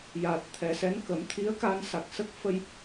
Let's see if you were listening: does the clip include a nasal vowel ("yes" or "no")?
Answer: no